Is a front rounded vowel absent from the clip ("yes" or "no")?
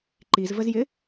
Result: yes